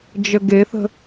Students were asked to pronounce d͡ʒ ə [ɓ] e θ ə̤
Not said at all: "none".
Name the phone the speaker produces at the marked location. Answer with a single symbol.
ɡ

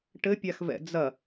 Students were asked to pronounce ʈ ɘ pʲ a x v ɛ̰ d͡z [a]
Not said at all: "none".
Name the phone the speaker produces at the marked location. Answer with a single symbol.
ɐ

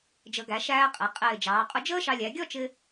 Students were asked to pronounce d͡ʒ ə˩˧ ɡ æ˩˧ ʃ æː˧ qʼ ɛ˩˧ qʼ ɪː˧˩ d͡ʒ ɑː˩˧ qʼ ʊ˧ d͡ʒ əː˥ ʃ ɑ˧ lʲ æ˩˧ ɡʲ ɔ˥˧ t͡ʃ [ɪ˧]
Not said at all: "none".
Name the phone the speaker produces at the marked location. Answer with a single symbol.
ɪ˧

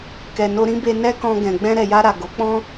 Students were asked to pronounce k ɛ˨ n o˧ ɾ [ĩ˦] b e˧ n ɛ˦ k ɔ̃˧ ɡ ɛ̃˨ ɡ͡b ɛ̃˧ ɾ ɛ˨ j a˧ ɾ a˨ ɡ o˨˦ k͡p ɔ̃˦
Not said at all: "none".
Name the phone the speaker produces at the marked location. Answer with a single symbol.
ĩ˦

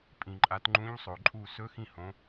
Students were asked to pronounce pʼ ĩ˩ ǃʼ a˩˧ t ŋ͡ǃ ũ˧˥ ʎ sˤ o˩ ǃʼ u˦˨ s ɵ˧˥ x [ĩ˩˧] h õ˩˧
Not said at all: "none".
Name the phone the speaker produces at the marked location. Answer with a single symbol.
ĩ˦˨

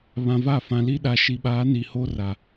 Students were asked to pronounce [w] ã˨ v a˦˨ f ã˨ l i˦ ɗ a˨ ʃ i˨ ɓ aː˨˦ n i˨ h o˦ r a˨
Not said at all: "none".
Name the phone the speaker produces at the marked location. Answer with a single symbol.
β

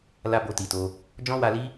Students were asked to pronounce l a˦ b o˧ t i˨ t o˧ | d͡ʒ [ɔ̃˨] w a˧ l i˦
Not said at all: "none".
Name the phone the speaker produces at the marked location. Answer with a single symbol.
ɔ̃˦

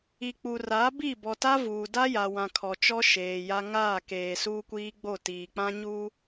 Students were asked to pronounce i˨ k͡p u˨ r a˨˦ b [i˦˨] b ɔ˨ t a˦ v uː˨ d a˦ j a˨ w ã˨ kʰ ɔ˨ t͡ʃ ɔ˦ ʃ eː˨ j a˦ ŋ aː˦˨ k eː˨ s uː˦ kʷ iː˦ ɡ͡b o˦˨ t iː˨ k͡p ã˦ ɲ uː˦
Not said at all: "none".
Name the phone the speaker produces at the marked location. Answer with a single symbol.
i˦˨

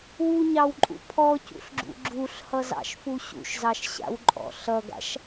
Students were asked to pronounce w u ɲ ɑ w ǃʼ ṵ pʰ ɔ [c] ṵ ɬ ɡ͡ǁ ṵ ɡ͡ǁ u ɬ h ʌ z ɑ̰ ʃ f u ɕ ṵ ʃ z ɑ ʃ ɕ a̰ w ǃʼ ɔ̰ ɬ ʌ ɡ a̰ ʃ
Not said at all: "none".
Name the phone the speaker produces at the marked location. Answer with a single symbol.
c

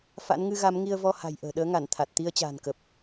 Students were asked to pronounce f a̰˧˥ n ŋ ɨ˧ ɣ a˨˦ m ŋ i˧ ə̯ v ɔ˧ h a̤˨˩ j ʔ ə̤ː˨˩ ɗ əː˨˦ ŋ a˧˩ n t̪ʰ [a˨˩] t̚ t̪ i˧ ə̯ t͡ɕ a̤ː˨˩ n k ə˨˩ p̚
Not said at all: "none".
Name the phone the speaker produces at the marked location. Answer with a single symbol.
a˨˩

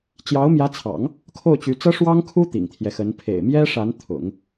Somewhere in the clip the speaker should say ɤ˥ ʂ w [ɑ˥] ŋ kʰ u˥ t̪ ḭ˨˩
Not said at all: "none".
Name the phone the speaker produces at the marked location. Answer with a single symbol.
ɑ˥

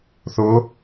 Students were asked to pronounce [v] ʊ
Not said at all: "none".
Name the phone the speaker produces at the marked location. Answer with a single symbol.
θ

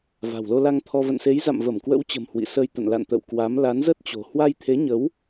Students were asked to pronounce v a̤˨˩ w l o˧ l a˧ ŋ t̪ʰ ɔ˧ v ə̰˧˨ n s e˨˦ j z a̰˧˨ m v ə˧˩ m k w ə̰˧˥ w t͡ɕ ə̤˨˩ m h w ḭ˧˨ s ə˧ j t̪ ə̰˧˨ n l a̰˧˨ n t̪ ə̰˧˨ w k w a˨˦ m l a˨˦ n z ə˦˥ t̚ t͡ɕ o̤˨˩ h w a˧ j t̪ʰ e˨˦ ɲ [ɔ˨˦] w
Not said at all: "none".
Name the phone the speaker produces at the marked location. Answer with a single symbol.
ə˨˦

